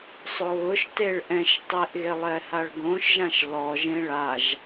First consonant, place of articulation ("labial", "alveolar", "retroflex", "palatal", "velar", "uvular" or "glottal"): alveolar